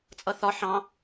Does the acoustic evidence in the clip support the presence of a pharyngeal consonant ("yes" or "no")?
yes